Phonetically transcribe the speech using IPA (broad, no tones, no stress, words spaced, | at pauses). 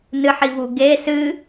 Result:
nɨħivu ɡe sɨ